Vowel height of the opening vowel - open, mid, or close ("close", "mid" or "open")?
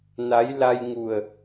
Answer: open